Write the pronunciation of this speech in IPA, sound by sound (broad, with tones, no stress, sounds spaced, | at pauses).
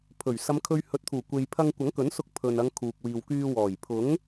pʰ ɵ˨˩ ɥ s ɐ˨˧ m kʰ ɵ˧ ɥ h ɵ˨˥ t̚ t̪ʰ uː˨˩ kʷ e˨ j pʰ ɐ˧ ŋ kʷ ɐ˨˥ ŋ k ɵ˨˥ n s ʊ˧ k̚ pʰ ɵ˨ n ɐ˨˧ ŋ kʰ uː˨ k̚ w iː˨ w k yː˧ w ɔː˨˩ j pʰ ʊ˨˥ ŋ